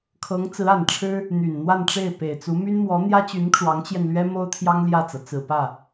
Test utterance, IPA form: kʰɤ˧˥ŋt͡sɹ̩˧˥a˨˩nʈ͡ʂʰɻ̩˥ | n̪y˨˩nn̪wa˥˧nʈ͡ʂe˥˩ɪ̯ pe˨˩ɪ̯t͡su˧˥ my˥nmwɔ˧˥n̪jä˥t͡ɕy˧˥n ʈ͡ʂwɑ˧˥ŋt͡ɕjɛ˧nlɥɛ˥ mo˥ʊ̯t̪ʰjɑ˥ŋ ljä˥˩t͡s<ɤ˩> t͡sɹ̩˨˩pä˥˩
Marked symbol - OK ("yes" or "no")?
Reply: yes